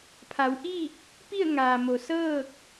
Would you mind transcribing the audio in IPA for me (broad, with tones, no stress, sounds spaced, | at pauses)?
pʰ a˩˧ w ʔ iː˥˨ k̚ | p i˥˨ ə̯ ŋ aː˩ m o˩ s ɤː˥˨ k̚